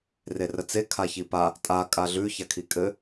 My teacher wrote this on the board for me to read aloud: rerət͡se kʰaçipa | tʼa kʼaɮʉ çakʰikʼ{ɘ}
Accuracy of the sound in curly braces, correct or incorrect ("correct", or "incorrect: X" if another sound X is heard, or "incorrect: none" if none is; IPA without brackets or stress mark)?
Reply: correct